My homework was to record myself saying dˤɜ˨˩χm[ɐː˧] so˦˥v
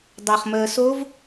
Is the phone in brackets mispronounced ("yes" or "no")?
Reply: yes